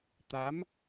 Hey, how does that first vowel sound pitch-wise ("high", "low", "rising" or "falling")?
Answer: rising